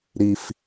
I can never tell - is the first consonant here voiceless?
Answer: no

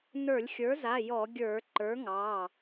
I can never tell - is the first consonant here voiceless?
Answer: no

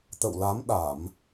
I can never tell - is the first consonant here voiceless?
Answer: yes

